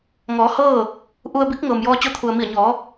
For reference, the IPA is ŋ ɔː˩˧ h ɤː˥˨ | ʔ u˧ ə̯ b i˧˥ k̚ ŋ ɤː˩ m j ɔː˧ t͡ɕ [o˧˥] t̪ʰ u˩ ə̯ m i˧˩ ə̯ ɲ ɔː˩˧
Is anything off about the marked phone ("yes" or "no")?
no